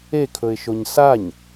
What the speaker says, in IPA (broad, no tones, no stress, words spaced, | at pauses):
ekʰɵɪ̯ʃoɲ saɲ